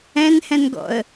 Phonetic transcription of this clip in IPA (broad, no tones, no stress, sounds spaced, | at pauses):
ɛ̃ n h ɛ̃ n ɡ ɔ̰ ə̯